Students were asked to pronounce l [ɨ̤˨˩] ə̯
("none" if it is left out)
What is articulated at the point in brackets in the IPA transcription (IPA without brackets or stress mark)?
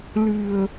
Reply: ɨ̤˨˩